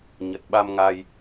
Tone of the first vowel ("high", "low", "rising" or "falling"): low